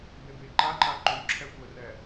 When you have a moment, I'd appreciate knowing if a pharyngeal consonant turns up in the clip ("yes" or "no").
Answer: no